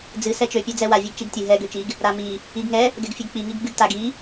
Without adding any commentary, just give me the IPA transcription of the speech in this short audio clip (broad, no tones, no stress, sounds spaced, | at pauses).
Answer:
d͡z ɨ s ɛ t͡ʃ ø pʲ ø d͡z ɛ w a vʲ ɛ ɡ t͡ʃ i ɡ tʲ ɨ ɦ ɛ ɡ ø t͡ʃ i ɡ | ɾ a m i | i ɡ ŋ ɛ | ɡ ɛ ɡ fʲ ɨ ɡ k͡p i ŋ i ɡ ɡ͡b ɨ ɡ t a ɡ i